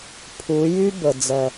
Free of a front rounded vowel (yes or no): no